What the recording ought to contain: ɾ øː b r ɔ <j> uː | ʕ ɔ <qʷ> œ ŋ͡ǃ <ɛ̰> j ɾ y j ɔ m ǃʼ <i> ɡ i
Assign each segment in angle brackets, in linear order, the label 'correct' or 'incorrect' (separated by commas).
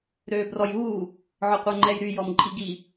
correct, correct, incorrect, correct